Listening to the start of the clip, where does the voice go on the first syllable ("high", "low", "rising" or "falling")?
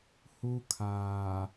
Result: high